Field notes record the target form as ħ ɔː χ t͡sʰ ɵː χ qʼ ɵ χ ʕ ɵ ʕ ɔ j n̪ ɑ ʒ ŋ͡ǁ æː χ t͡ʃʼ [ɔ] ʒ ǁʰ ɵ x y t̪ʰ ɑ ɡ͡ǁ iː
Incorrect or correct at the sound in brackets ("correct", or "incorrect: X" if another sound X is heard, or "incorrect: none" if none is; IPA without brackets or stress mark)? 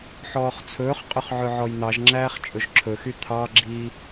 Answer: incorrect: ɵ